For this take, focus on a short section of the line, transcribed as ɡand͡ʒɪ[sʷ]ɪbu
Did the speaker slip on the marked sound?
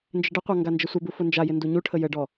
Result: no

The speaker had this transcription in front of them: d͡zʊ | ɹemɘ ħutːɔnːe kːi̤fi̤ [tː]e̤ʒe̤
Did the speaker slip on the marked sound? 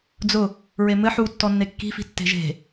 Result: no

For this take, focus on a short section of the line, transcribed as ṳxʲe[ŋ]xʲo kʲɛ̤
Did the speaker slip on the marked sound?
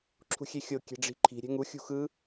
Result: yes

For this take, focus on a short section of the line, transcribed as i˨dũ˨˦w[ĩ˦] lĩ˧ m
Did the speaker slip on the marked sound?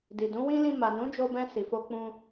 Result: no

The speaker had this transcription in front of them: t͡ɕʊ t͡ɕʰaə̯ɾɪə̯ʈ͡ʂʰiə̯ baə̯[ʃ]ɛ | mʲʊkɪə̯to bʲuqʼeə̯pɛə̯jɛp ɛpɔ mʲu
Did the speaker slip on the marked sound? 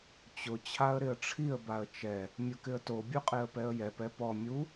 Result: yes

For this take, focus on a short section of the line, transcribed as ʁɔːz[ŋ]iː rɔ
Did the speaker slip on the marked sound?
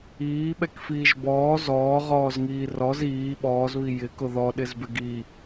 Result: no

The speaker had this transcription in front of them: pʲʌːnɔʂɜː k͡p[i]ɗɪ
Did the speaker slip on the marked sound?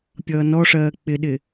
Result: yes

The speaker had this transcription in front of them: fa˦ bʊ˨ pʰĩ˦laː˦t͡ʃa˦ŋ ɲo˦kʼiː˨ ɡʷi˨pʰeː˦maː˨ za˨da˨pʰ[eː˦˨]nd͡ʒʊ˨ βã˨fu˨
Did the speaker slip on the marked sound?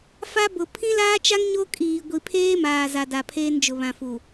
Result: yes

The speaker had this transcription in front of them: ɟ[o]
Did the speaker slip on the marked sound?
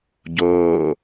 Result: yes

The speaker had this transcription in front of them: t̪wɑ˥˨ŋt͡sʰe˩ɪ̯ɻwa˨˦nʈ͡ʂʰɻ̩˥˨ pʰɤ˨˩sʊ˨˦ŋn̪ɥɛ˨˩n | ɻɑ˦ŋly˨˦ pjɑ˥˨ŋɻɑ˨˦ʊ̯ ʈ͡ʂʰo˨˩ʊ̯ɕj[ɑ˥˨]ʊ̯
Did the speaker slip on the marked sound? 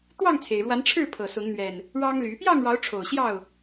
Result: no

